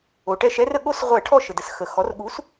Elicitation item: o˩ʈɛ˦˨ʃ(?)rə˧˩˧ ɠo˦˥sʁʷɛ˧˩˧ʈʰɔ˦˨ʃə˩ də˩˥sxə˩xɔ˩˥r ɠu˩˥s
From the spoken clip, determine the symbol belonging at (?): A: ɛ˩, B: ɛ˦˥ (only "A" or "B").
B